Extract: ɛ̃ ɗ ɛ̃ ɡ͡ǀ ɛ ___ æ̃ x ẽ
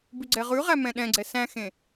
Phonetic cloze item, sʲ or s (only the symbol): s